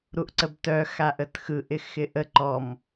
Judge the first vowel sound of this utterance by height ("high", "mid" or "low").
high